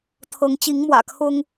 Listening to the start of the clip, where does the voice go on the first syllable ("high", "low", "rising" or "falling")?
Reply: rising